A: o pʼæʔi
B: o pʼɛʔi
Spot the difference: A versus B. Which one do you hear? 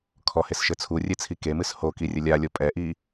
B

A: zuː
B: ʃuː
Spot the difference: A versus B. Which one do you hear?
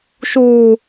B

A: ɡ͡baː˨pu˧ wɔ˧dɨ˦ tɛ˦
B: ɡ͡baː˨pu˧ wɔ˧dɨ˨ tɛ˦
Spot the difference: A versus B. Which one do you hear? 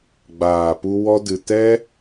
B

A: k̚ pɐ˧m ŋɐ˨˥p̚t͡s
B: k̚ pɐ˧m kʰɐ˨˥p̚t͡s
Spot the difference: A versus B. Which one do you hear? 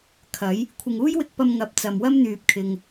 A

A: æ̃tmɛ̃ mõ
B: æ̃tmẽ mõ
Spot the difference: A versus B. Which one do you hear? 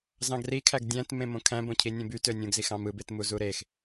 B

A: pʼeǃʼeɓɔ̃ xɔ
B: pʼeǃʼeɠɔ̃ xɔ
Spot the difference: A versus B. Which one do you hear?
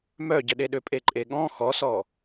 B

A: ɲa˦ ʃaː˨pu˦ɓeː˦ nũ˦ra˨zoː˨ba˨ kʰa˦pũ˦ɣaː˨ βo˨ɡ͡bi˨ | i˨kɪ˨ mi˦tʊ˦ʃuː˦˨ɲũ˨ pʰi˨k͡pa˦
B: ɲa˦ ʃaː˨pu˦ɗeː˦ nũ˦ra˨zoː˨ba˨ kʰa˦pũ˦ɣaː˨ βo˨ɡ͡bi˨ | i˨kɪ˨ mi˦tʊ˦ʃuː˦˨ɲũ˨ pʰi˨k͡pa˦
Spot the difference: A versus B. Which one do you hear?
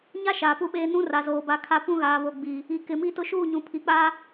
A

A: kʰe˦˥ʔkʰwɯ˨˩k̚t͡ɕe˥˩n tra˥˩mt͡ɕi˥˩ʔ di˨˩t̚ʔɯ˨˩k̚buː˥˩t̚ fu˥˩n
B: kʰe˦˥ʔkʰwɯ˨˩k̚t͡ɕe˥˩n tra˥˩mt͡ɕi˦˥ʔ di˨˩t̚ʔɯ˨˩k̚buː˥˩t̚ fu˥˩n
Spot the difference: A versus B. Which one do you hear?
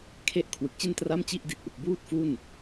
A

